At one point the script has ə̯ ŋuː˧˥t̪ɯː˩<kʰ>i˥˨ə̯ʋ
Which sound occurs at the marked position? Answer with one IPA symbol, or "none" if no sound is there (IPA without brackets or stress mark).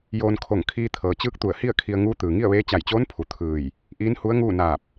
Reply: ŋ